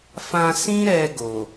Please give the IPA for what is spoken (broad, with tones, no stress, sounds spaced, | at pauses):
f ã˧ s ĩ˦ ɾ ɛ˧ ɡ o˨